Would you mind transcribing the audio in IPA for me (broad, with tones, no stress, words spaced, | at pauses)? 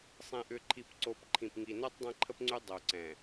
sˤẽ˨ʔʏ˨ǃʰi˨p ǀo˨p ǃʰĩ˨pŋi˨no˦tˤ dˤẽ˦ǃʰə˦pŋ͡ǀy˦ dˤo˨ ǀɛ̃˨